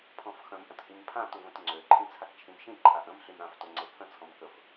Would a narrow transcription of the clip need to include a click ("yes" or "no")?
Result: yes